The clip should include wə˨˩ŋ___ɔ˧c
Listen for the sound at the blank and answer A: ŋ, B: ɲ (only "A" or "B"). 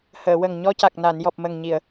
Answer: B